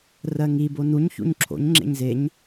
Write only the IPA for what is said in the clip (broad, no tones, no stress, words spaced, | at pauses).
rɜŋi bonuɲ çṵɲǁʰo̰ɲ ŋ͡ǁḛɲzeɲ